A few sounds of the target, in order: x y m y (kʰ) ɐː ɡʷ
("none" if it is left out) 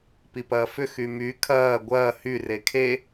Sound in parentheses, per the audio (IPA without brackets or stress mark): kʰ